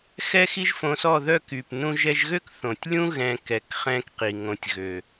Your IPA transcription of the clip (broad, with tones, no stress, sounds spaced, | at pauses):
x ɛ˦ x i˦ ʒ f õ˧ s ɔ˦˨ ð œ˦˨ k y˨ p n ũ˦ ʒ ɛ˦ ʒ ɣ ø˦ k θ õ˨ tʲ lʲ ũ˦ ɣ ɛ̃˦ k ɛ˨˦ k χ ɛ̃˦ k q i˨ ŋ õ˧ tʲ ɣ ø˨